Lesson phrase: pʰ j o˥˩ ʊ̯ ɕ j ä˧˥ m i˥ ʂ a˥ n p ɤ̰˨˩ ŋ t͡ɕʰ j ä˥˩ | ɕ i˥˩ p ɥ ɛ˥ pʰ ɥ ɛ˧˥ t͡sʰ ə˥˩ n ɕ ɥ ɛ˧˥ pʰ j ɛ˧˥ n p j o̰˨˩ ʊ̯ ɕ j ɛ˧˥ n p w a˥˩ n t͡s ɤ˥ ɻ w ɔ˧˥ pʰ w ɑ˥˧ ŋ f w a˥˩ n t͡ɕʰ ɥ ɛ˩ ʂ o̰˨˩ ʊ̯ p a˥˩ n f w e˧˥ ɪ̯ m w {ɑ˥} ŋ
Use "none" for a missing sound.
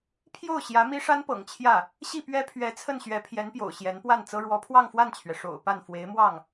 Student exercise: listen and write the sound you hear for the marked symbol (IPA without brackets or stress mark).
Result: ɑ˥˩